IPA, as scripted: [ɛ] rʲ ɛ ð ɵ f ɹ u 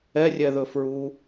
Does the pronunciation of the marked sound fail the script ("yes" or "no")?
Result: no